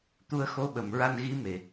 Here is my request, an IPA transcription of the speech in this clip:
t̪u˧ə̯xo˧˥ ɓə˨˩mɹa˧nɣi˧˥ me˨˩

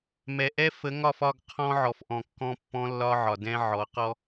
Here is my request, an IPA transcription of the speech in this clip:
mɛ˨ʔɛ˦ fə˨˦ŋɒ˦˨f ɒ˦˨ɡ qʰɔ̃˦ʕɔ˨fʔɔ̃˨ kːɔ̃˦pːɔ̃˦lːɒ˦ ʕɒ˨dɛ̃˦ʕɔ˨˦ qɔ˦

